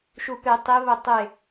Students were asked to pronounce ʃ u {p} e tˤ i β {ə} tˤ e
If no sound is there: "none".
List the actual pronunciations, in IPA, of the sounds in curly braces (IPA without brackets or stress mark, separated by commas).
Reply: p, ə